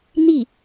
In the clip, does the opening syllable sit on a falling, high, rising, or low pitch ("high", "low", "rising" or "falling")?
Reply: falling